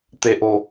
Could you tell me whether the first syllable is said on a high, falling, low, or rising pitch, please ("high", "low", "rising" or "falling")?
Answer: low